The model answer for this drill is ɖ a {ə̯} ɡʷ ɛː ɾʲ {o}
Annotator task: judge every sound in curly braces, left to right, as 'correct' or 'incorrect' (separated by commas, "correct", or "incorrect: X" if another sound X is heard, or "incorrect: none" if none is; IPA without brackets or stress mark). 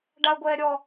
correct, incorrect: ɔ